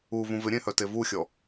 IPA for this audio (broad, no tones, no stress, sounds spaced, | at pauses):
u v ũ v ɪ ɾʲ ẽ h œ t e v u xʲ ɔ